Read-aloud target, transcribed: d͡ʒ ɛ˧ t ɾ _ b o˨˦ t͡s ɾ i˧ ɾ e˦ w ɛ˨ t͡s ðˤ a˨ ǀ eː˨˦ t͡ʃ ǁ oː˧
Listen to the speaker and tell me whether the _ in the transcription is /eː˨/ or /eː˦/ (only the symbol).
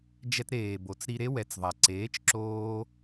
eː˨